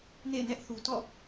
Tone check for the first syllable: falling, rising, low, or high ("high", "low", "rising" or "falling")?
falling